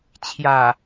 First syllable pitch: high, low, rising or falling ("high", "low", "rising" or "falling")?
low